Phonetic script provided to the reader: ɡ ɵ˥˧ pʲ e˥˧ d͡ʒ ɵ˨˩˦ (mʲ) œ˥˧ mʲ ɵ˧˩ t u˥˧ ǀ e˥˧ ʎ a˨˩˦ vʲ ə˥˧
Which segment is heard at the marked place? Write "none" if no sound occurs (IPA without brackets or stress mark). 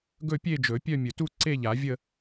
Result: pʲ